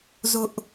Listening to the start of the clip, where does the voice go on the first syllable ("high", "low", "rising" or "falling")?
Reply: high